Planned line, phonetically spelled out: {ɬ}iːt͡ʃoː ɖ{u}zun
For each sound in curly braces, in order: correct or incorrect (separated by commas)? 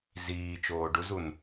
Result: incorrect, correct